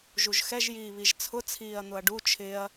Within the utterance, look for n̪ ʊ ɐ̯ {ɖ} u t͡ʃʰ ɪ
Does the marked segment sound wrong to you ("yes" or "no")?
no